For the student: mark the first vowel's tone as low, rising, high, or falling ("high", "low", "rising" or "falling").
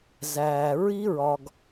low